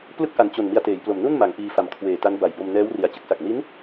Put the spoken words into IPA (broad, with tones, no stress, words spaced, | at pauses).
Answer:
plɯ˥˩k̚ʔa˨˩n t͡ɕo˨˩n mi˧a̯teː˩˦jplo˨˩m nu˥˩nma˩˦ŋ ʔiː˧fa˨˩mkʰweː˨˩ta˦˥n ba˨˩jbo˧mnɛː˦˥wri˨˩a̯ t͡ɕɯ˦˥k̚sa˨˩k̚ ni˦˥n